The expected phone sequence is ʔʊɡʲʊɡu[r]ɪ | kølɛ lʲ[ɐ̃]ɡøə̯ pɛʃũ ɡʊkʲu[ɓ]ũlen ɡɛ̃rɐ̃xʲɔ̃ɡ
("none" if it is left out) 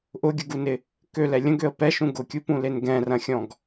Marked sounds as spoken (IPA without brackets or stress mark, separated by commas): n, ə̃, p